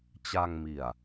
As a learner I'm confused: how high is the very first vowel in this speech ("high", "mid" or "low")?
low